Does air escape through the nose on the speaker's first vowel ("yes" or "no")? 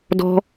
no